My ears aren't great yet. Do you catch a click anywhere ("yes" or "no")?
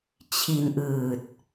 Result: no